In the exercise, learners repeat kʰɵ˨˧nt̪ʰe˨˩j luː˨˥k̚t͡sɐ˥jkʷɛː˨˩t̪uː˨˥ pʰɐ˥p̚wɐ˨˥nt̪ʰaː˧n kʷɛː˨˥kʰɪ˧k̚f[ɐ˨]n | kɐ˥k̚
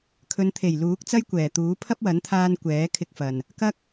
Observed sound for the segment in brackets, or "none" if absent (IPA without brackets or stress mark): ɐ˨